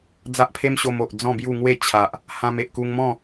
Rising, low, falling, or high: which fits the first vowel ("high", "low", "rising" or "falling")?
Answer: high